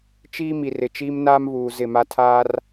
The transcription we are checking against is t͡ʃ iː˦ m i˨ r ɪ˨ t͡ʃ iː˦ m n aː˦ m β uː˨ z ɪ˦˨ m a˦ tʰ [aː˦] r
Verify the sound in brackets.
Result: correct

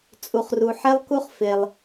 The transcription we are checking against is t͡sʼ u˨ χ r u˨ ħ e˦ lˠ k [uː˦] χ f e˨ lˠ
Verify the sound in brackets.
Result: incorrect: u˦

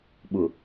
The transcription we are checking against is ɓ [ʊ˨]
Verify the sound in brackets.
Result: correct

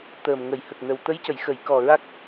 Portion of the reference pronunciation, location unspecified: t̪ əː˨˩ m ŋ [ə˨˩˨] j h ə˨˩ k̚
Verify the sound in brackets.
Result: correct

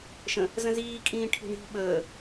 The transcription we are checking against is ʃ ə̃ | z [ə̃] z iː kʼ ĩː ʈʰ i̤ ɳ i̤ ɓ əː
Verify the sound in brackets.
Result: correct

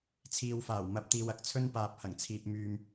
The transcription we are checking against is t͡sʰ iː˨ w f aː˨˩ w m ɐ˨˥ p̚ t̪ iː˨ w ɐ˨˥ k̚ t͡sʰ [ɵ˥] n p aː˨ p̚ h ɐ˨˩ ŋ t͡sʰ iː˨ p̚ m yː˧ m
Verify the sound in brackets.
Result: correct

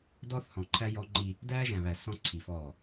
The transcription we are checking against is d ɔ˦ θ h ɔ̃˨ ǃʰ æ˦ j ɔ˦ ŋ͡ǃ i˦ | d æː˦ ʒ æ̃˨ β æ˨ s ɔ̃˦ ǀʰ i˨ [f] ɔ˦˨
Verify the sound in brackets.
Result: correct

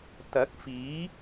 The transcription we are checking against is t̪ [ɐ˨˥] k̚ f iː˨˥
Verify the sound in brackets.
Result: correct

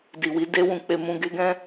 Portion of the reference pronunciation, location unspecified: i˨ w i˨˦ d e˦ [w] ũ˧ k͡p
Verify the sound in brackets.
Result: correct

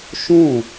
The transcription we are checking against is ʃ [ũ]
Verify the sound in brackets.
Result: incorrect: õ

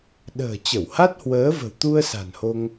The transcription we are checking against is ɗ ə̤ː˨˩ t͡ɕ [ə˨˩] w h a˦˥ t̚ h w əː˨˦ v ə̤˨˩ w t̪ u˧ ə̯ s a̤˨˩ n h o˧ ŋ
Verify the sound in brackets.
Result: incorrect: ə˧˩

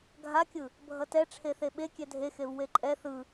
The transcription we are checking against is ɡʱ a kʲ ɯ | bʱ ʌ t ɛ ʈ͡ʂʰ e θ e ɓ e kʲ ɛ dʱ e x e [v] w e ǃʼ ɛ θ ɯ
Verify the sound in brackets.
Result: correct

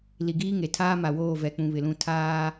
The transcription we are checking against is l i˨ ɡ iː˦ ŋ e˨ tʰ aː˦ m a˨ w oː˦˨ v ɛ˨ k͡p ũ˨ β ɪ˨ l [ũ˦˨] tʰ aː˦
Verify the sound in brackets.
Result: correct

